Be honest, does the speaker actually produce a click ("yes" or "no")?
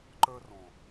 yes